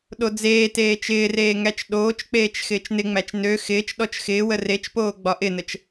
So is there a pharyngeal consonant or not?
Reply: no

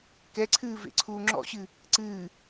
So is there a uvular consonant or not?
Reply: no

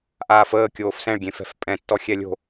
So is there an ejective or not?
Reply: yes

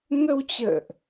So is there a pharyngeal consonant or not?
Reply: no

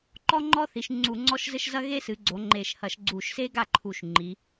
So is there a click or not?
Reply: yes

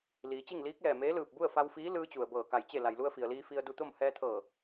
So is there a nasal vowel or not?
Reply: no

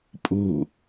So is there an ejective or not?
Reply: yes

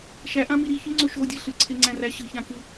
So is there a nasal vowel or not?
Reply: yes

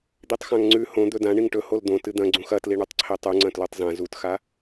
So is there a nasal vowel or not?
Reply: yes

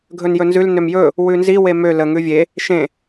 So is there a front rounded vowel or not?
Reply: yes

